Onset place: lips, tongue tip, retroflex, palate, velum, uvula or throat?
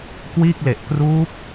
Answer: velum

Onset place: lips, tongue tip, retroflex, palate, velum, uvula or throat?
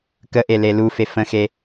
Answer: velum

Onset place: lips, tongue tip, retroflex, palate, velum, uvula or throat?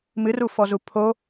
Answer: lips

